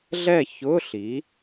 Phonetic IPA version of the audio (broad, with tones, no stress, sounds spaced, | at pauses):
ɮ ɛ˥˨ ç ʊ˧˥˧ ɬ i˩˥